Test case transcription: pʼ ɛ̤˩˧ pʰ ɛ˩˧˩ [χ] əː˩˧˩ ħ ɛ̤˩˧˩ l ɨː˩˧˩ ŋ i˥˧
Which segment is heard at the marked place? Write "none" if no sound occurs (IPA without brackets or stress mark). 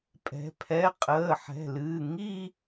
qʼ